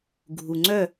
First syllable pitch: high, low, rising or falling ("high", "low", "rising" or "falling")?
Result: low